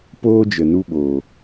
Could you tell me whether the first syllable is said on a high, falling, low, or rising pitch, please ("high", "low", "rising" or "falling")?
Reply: high